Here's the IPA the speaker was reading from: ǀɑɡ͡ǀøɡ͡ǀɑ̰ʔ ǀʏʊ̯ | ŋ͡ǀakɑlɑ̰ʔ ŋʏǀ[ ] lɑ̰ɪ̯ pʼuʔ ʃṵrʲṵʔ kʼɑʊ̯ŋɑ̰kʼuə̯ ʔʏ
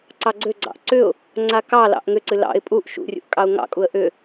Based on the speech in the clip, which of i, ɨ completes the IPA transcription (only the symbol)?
ɨ